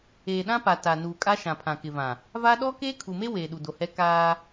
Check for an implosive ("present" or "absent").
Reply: present